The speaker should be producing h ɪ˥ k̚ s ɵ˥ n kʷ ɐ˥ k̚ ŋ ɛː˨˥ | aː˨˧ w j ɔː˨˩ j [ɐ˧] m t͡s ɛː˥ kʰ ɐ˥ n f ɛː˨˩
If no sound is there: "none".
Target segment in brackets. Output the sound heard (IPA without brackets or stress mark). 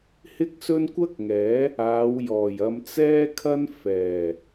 ɐ˧